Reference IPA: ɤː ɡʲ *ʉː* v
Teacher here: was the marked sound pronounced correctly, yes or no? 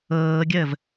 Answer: no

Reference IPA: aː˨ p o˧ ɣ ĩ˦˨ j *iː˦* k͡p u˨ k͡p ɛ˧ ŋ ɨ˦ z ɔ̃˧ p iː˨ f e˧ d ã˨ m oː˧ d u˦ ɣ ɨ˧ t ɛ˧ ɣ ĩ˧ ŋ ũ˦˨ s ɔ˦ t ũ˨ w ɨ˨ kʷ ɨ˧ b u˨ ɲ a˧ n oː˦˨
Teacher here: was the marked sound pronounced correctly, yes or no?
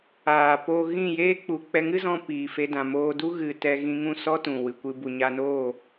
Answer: no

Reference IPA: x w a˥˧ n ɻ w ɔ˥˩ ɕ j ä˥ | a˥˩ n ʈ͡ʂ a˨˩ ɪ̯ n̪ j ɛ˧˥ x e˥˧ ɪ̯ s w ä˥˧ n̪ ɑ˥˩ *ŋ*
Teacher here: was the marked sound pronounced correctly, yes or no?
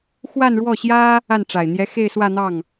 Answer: yes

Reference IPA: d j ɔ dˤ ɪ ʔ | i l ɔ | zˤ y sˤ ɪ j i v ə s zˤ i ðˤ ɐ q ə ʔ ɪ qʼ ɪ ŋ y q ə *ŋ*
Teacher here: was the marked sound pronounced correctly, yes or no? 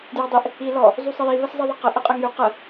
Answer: no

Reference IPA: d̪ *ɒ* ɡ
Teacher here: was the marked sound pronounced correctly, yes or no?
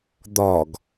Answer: yes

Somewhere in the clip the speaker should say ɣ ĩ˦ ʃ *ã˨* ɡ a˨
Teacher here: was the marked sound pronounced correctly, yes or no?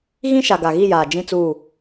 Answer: no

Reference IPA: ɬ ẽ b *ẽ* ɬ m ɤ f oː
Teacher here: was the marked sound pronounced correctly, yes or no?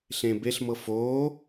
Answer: no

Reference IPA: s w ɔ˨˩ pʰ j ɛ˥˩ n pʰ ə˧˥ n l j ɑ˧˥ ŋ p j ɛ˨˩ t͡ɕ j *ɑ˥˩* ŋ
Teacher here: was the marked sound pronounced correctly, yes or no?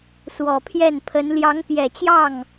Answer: yes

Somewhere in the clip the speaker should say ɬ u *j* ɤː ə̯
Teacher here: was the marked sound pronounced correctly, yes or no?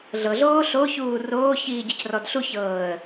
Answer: no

